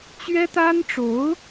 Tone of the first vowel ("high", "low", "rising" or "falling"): high